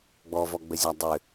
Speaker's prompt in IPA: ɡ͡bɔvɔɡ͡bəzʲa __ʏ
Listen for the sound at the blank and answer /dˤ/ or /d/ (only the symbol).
dˤ